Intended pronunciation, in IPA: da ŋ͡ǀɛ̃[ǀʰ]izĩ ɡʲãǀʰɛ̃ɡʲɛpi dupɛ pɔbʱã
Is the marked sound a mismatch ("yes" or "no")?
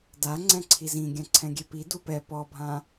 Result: no